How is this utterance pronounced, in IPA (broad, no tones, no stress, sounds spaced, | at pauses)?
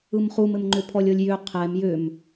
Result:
ɯ m χ u m ɘ m ŋ͡ǃ ʏ pʰ ɔ lʲ ɤ lʲ j ʏ qʰ ɛ m j ʏ m